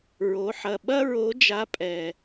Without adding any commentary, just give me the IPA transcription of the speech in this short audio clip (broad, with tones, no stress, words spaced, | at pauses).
ɹo˩˧ħɐ˨˩ ɓɐ˥ɹo˧˥ d͡ʒa˧˥pʼɛ˨˩